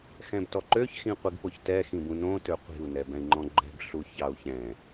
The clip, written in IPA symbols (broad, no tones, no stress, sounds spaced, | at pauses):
x ɛ̃ b t ɔ ǃ ø ç x ĩ qʷ i ɡ p o ç t ɛ x ĩ b ũ n õ t ø qʷ i̤ u̯ n ɛ b ɛ̃ i̯ ŋ͡ǃ ɔ̃ ɡ͡ǃ ɛ̤ b ɬ u ç ɑ u̯ ç ɛ̃